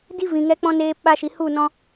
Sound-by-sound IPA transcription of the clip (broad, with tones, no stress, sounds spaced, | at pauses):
d i˦ v ĩ˨ ŋ ɛ˧ k͡p ɔ̃˧ n eː˧ p ɓ a˧ ʃ i˨ h u˦˨ n ɔ̃˧